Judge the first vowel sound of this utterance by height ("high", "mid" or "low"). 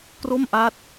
mid